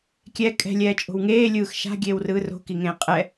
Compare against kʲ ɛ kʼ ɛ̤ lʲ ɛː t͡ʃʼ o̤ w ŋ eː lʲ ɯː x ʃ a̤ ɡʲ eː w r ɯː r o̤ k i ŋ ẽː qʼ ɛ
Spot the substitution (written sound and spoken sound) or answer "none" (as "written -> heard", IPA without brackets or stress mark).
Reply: none